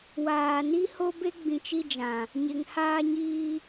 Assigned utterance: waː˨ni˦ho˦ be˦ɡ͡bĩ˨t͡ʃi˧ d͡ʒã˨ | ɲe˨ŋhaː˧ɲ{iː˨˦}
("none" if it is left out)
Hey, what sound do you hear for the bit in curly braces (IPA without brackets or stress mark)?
iː˧